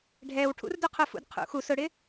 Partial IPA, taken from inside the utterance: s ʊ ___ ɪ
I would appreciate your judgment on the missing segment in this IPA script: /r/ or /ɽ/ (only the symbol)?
ɽ